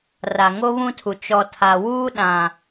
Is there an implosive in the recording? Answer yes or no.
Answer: yes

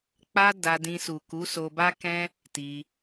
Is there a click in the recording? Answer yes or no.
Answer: no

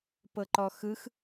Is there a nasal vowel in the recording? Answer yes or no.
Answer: no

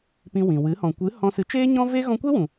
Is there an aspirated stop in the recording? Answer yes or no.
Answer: no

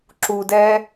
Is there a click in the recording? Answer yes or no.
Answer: yes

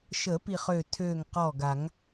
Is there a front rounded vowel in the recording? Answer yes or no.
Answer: yes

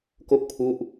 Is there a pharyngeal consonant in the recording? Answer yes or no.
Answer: no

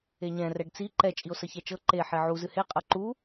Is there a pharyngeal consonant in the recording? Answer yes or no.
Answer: yes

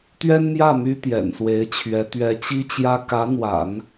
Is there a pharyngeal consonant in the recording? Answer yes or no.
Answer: no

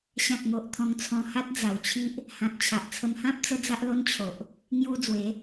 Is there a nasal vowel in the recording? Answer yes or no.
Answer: yes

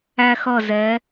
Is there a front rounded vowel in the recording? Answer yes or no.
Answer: no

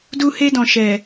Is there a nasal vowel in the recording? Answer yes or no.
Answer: yes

